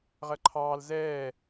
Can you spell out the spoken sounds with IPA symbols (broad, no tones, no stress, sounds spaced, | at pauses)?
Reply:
ʁ ɜ ǃʰ ɑː l z ɛː